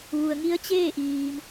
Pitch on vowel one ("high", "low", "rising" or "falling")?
low